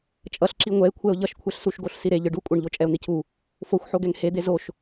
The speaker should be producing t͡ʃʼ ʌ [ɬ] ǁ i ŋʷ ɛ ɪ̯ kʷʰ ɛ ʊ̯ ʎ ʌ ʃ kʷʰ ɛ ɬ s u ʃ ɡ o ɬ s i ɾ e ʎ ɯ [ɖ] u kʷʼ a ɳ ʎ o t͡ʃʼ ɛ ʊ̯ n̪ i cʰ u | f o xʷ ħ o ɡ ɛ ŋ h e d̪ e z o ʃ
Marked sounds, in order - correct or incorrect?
correct, correct

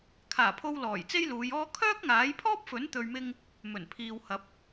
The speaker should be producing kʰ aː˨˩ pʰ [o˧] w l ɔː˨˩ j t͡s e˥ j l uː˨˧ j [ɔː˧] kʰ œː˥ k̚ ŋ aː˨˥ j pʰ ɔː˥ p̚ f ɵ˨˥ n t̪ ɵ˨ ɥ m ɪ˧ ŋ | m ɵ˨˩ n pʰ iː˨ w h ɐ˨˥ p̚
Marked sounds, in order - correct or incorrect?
correct, incorrect: ɔː˥

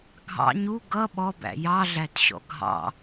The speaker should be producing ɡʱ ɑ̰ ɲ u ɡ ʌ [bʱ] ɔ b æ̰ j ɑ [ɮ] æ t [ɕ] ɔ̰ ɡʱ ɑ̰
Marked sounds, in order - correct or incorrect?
incorrect: ɓ, correct, correct

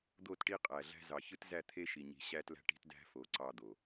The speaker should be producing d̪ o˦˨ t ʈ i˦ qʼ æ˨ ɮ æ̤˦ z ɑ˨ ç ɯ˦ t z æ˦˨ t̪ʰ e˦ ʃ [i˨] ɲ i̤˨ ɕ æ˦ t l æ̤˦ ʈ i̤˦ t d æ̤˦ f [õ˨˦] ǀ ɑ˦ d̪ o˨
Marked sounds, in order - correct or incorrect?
correct, incorrect: o˨˦

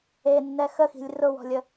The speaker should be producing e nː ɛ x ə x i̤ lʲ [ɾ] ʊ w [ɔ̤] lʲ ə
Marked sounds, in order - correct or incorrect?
incorrect: r, correct

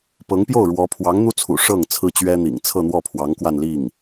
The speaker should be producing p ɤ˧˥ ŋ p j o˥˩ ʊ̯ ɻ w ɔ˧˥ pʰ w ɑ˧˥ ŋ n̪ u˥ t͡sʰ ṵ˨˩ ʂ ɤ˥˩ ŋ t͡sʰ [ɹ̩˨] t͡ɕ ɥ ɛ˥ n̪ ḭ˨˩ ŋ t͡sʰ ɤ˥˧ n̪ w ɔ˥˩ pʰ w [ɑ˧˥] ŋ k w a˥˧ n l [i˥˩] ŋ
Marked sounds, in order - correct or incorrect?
incorrect: ɹ̩˥, correct, correct

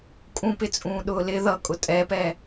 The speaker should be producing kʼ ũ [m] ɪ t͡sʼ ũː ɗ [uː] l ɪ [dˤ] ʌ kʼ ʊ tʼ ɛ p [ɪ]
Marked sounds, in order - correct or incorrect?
incorrect: p, incorrect: ʊː, incorrect: ð, incorrect: ɛ

